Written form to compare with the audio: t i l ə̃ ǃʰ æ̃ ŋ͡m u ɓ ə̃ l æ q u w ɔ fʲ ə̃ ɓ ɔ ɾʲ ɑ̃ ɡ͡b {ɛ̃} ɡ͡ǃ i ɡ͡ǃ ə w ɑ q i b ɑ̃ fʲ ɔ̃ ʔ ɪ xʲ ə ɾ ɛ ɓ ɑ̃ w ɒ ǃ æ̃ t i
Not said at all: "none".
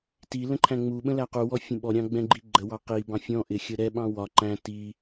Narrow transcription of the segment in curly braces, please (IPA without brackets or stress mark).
ɛ̃